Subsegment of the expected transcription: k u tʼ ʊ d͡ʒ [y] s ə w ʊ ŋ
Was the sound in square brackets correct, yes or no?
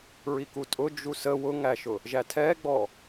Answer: no